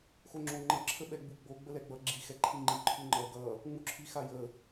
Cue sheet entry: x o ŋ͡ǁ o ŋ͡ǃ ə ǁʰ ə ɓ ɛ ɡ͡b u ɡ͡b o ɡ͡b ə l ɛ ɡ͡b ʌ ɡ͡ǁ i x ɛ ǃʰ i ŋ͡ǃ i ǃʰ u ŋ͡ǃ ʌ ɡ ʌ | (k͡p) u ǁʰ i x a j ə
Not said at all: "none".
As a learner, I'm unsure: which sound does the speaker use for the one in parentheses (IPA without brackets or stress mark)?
ŋ͡m